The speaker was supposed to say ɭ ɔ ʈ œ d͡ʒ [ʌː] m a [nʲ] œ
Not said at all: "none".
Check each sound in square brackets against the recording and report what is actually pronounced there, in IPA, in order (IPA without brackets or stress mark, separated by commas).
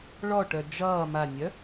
ʌː, nʲ